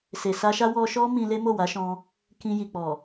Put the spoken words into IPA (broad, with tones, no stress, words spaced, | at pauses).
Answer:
se˨sa˧ʃa˦ wɔ˧ʃɔ˦ mĩ˧ le˦mo˦˨wa˨˦ʃɔ̃˧ | kĩ˧ji˨ k͡pɔ˨